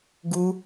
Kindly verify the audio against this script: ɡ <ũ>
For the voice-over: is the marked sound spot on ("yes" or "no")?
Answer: no